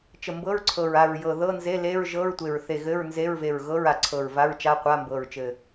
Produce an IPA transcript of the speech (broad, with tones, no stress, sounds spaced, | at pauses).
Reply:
t͡ʃ ə˨˩ m b ɤ˧˥˧ ɹ ǀʰ ɤ˨˩ ɹ a˨˩ ɹ j ɤ˨˩ ð ɤ˧˥˧ n z e˧˥˧ l e˧˥˧ ɹ ʒ ɤ˧˥˧ ɹ tʷ e˨˩ ɹ θ e˨˩ ɣ ɘ˧˥˧ ɹ n z e˧˥˧ ɹ v e˨˩ ɹ ɣ ɤ˧˥˧ ɹ a˨˩ ǀʰ ɤ˨˩ ɹ v a˧˥˧ ɹ t͡ʃ a˧˥˧ qʷ a˧˥˧ m b ɤ˨˩ ɹ t͡ʃ ɘ˨˩